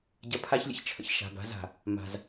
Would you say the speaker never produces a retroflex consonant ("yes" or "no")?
yes